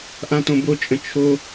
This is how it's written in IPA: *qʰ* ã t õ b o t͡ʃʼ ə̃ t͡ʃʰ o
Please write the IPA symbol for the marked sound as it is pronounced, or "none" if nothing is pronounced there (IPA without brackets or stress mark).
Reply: ʔ